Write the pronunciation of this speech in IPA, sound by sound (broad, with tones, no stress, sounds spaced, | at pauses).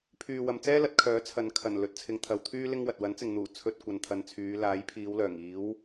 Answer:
pʰ yː˨ w ɐ˨ m t͡s ɛː˥ l ɐ˨˥ t̚ kʰ œː˨˥ t͡sʰ ɐ˨ n kʰ ɐ˨˩ n l ɵ˨˥ t̚ t͡sʰ ɪ˨˧ ŋ t̪ʰ ɐ˨ w t̪ʰ yː˥ l ɪ˥ ŋ w ɐ˨ t̚ w ɐ˨˥ n t͡s ɪ˨ ŋ n̪ uː˨˩ t͡sʰ ɵ˧ t̚ kʷ ɐ˨ n t̪ʰ ɐ˨˧ n t͡sʰ yː˨˧ l aː˨˥ j pʰ iː˨˧ w l œː˨˩ ŋ iː˨˥ w